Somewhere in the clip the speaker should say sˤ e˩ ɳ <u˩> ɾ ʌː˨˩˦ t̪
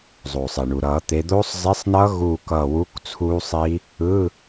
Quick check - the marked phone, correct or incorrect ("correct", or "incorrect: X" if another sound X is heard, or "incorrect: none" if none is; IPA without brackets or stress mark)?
correct